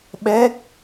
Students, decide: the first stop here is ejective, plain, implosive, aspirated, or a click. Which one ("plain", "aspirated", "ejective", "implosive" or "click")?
implosive